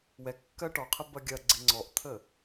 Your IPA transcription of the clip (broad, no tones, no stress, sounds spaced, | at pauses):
w ɛ kː ɜ ʈ ɔ qʰ ə b ɐ ɡʲ ɐ ɡ͡ǀ ɪ ŋ͡ǀ ɔ ʔ t̪ʰ ə